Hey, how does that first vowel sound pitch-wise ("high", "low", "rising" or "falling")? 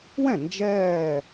falling